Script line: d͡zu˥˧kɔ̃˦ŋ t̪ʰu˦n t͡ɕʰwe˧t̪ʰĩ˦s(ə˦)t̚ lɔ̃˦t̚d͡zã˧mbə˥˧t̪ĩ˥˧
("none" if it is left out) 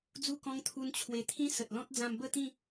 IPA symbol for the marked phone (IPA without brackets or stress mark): ə˨